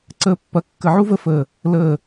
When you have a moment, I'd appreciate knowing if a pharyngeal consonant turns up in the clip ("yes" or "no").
yes